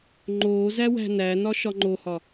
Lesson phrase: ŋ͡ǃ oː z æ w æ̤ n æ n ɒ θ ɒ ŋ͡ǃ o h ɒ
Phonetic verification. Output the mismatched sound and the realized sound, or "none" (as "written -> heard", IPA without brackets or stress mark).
θ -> ʃ